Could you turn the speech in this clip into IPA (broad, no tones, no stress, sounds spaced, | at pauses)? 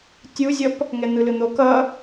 tʲ u zʲ ʌ p | ŋ ɛ n̪ ɯ l ɯ n̪ o k ʌ